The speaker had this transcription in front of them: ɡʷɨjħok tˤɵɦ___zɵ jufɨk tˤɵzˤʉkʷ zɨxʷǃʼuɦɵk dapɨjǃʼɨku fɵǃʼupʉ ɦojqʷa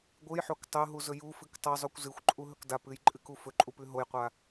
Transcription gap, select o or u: u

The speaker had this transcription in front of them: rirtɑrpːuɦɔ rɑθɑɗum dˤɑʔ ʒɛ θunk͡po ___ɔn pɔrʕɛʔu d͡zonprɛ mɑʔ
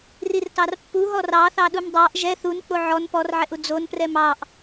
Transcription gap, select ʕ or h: ʕ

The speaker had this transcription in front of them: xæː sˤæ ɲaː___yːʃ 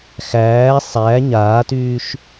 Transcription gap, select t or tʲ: t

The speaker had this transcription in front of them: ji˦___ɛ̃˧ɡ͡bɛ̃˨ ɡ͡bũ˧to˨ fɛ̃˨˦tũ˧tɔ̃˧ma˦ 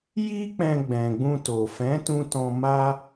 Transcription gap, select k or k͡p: k͡p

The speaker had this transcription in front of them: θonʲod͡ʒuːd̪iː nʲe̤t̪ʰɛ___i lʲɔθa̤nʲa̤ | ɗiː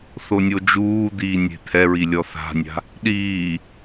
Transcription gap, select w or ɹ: ɹ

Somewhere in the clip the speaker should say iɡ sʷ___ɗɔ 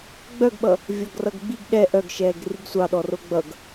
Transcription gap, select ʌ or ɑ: ɑ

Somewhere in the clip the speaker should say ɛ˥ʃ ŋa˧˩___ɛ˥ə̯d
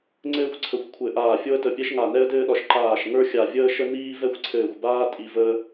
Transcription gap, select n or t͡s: n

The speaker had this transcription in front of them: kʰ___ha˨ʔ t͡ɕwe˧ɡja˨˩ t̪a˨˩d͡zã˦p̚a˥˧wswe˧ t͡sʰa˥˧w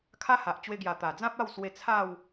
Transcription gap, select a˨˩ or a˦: a˦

